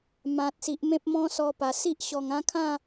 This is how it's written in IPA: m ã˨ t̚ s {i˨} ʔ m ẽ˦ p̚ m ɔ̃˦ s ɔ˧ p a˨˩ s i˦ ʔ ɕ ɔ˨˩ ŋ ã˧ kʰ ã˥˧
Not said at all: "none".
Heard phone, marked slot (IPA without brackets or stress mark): i˨